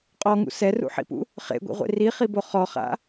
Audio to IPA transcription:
qʼɔŋṵ sɛrṵħḭpṵ | χḛɡʷḭʁʷḛ riχibo χɔχa̰

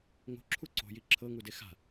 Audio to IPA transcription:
ŋo̤ǁʰu ǀo̤ji ǁʰɤŋude xa̤

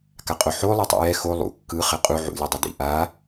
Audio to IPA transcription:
kaqʼoħo lˠitˤṵjɛ xo lˠṵ kːɯ χɛqʼu ʕṵ lʲɯdˤɯdḭ ʔa

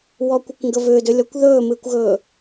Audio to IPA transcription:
wɔkʷɨkʷŋɡə vʏːdʏlʲɔkʷ ðɵːmɨːkʷɣɵː

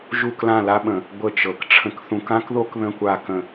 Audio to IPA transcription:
ʒu˥˧klã˥˧la˥ɓə̃˧˩ | ɡʷə˥˧t͡ʃɤ˧˩k ʈ͡ʂʰə̃˧kθũ˧kã˥kðo˥k ðə̃˥˧kʷa˥˧ kə̃˥˧

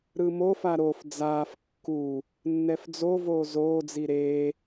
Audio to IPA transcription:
ɾɯmofa ɾof d͡zaːf kːu | nːɛfd͡zovoː zoːd͡zi ɾe

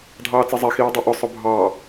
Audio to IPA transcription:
dʱɑːt͡sezˤe xiːdˤuʔʊ sˤʊbʱɑ

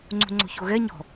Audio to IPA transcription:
ŋ͡ǀṳŋ͡ǀo̤çoɣɛ ɲɔ̤

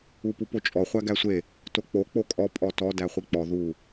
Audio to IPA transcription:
upupot͡ʃʼɔ χʷæɡæsʷe | tok͡po k͡pokʼɔ pʼɔtɔ dæχʷik͡pɔ ðu

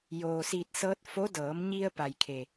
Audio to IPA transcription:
joː˩siː˧˩t̚sɤː˧t̚ fo˧˥dɤː˩˧m ɲi˧ə̯pa˩jkʰe˩

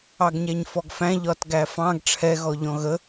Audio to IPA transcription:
ɑɡɲæɲfɔɡfæ̃ ʎɒtɡæfɑ̃ɡ ʈ͡ʂʰɛɣɔ ʎɔ̃ɣə

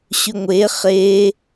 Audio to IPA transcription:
ɕʉŋʷe χe

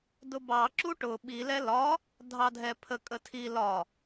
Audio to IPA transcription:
dʊbɑ ǁuʈʊ ɓi lɛlɒ | dʱɑdʱɛpʰə kʼətʰi lɒ

